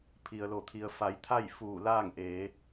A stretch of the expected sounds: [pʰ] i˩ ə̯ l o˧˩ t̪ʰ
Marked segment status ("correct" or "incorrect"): correct